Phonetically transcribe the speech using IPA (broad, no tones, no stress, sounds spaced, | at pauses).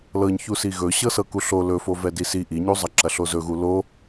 l ɤ ɲ ç u s i ɣ ɵ ɕ ɤ s ɤ k u ɬ o l ɵ f o v ɛ d i s i ʔ i ɲ u zˤ ɐ ǁ ɐ ɬ o z ɵ ɣ u l o